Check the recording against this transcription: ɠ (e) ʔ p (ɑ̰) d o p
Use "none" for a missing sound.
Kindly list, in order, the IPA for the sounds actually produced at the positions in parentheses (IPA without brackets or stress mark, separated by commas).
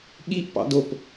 i, ɑ̰